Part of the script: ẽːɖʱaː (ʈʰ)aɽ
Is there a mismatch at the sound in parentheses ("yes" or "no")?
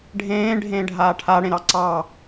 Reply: no